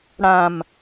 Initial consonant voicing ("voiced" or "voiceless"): voiced